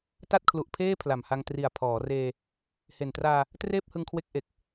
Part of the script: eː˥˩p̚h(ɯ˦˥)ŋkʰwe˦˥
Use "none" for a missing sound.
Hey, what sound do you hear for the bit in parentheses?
ɯ˧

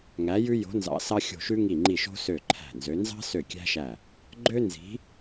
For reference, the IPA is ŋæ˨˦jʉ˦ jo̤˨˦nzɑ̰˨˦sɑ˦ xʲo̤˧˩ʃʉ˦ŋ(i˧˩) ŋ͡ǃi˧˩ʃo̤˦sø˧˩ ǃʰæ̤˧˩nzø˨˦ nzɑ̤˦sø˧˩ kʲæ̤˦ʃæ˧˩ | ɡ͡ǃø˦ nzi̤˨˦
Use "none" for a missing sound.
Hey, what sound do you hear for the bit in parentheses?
i˧˩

